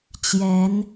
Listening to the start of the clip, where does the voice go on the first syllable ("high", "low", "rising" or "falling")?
rising